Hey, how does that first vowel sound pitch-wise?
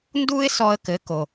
high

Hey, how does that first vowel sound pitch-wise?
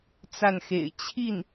falling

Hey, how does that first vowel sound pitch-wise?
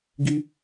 high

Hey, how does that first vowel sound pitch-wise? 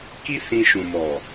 high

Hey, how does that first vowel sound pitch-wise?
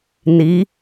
rising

